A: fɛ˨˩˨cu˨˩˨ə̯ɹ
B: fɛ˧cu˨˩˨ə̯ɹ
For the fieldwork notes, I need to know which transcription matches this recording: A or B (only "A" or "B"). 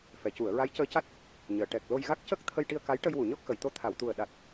A